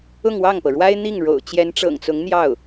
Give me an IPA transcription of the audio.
ʊ˥˧ŋwɑ˥˩ŋpɤ˩ɻwa˥ɪ̯ n̪i˥˩ŋ ɻo̰˨˩ʊ̯ t͡ɕjɛ˧˥nʈ͡ʂɤ̰˨˩ŋt͡sʊ˧˥ŋn̪jɑ˥˩ʊ̯

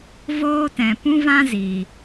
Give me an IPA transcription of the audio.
voː˦tɛ̃˨ pũ˦vã˦ziː˨

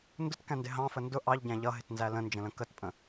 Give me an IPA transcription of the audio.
ndʊtkæ̃ndɪ ɦɑ̃fə ndʊ ʔɑʎɟæ̃ ʎʌɦɪtnzæ lə̃nd͡ʒə̃lə̃ kətpʼə̃

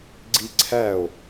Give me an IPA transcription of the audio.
ɡ͡ǀiǀʰæo̯

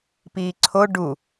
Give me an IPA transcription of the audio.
piːǀʰo ɖu

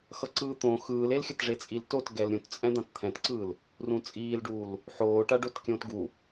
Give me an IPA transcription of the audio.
xʌǀɯːt̪õ xɯːlelxʲʌtʐe t͡sʼiltotɡɛl ɾʲũtt͡sʼɛ̃ d̪ãtt̪ʰɛ̃tǀɯːl | rũt͡sʼiːlɖuːl | ħoːʈaɖot kʲõːtɡu

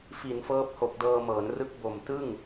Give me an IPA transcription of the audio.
fi˩˦nfɤː˦˥p̚ho˨˩k̚ dɤː˧mɤː˩˦nrɯ˦˥k̚ bo˨˩m tɯ˥˩ŋ

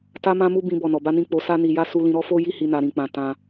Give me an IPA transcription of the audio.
ta˧mã˧mu˧ bĩ˧bɔ˨nɔ˨ ba˧nĩ˧ k͡po˧sa˦ni˧ja˦ su˧lĩ˧ɾɔ˦ fo˦ji˦hi˧ na˧ɾĩ˧k͡pã˧ tã˧

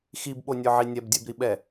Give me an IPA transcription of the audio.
xibɓonʲə˞ʕi nʲɛbdʲɛbɾiɓɛ

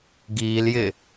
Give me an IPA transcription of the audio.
ɡiːljɪː

